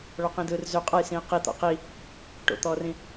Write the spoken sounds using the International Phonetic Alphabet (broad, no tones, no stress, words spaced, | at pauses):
ɭɔqĩdɯːrzø qʼʌjsĩe̯ qi t̪ɔ̰qi | ʈo̰t̪ɔːrĩ